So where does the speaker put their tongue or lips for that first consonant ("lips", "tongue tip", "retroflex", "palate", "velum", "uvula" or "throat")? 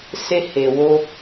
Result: tongue tip